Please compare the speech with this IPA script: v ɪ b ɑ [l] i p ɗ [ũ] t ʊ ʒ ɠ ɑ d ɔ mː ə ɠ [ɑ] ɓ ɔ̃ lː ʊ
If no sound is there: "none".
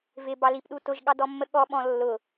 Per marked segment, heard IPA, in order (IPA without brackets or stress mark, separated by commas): l, u, ɔ